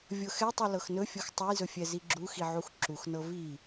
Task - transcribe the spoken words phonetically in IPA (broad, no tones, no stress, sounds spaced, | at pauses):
vʲ ɤ x ɛ tˤ u l ɤ x n ɵ fʲ ɤ x tˤ u j z ɵ fʲ ɛ z i ɡ͡ǁ u x i ʕ u x ǁ u x n ɤ v i